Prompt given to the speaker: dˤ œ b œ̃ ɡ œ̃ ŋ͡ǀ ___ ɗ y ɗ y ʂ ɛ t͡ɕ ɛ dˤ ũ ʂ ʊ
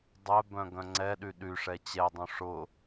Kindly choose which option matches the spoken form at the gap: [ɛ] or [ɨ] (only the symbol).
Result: ɛ